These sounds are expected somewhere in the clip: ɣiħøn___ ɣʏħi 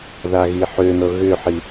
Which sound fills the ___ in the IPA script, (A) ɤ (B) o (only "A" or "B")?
A